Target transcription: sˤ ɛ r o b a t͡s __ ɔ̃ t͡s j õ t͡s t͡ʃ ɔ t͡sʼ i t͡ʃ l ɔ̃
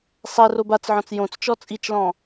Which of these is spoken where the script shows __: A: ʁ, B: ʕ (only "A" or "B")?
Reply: B